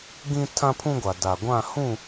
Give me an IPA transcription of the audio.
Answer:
ɡĩ˦tʰã˦pʰũ˦ɡʷa˨ da˨ɡʷã˦˨hũ˦˨

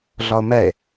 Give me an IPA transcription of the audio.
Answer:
ɮɒo̯mɛe̯

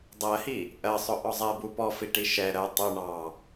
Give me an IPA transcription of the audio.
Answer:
dˤɜhi | ʔɜsˤʊ ʔɔzˤɛbu pɔfiʈi ʃɛ ɾɜ tˤu ɳɑ

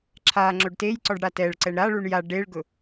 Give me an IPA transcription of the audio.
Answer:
ǁʰa ŋ͡ǁoɖtejǀɔɖ ɽatɛɭǀɛɳ ɾaɭuɳ ja ɖeɭɡʊ

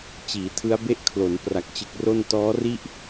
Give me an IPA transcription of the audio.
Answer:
t͡ɕiː˩˦tʰɯ˦˥a̯be˥˩ʔkʰlo˩˦n pra˨˩k̚t͡ɕɯ˨˩k̚ro˥˩n tɔː˦˥ri˥˩ʔ

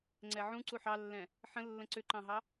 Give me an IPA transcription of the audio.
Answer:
ŋ͡ǀɛʕũ ǀuħɑlːɛ̃ | ħə̃ lːə̃ǀʏǃɑ̃ɦɑ

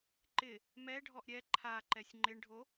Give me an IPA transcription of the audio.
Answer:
ǃɪ | mɛɖʱɔʔ ɾʲɛ ǃʰaǃɛsʲ ŋ͡ǃɪɳɖʱo

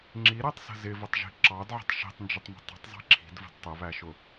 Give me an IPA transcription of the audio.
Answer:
ŋ͡ǁiɾætˤsə̤ zɪvətˤʒi̤ ǁɑdʕə̤tˤ ʃi̤tˤnd͡ʒətˤmə̤ tˤə̤tˤzˤi̤ ǁʰi̤dvə̤d tˤəβæʃʊ

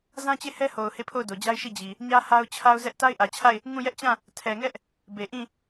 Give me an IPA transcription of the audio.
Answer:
zã˦t͡ɕe˦˨hɛ˦ho˨ʊ̯ he˦˨pʰo˦˨ʊ̯do˨d͡ʑa˦ɪ̯ ʃi˦˨d͡ʑi˨ | ɲä˦ha˦ʊ̯ t͡ɕʰa˦ʊ̯zɛ˦ʔ ta˦ɪ̯ʔä˨t͡ɕʰa˦˨ɪ̯ | ŋũ˦˨jɛ˦ʔt͡ɕã˦˨ | tʰɛ˨ŋɛ˦ʔ | be˨ʔĩ˦˨

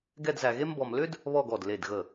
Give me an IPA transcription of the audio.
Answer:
ɡɛ˥˧dzæ˧ɣe˥mbɔ˧m lʏ˥d | βɔ˥˧ɡɔ˧˩d le˧˩dɣə˧˩

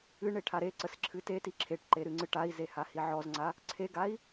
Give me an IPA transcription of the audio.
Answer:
ɨ ɳeʈʰaɾeǀəs ǁʰɨteti ǁʰeʈǃe ɾɨŋ͡ǀɨʈai̯ze hahiʕɔzŋ͡ǀa | ǀʰeɡai̯

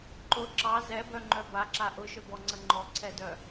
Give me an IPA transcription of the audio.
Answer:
ǃʊ ǁɑ zɛbœŋ͡ǃœ baǁa ʔʊʃœbɔŋ͡ǀə ŋ͡ǃɔǀʰɛdœ

